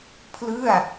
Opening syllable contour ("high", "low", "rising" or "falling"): falling